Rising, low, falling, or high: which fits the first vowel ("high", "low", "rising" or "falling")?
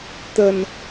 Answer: low